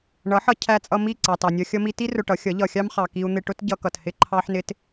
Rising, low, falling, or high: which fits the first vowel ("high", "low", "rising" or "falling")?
rising